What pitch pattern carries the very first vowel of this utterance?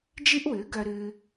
high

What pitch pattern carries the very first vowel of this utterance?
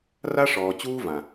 high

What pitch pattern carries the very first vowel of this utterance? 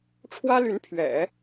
high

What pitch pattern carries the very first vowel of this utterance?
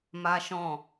high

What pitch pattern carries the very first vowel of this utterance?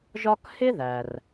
high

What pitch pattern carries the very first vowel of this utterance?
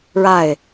falling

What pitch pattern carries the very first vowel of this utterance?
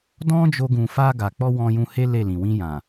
high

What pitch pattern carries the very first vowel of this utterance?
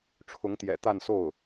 rising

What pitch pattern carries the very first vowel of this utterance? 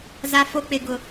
low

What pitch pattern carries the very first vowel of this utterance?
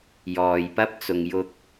low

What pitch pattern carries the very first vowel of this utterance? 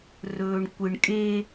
low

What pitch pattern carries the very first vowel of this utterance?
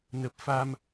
low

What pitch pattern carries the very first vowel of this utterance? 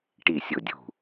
falling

